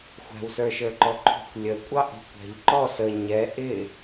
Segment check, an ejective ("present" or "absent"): present